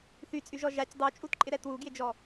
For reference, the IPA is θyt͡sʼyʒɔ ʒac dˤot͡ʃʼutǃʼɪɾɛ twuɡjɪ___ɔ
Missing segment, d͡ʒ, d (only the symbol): d͡ʒ